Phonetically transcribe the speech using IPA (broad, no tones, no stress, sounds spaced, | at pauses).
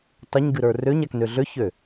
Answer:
tˤ ə ɲ ɡ ɨ ɾ ə˞ r ø ɲ a k n ø ɮ ø ç ø